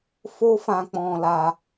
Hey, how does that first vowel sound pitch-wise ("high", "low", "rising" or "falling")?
high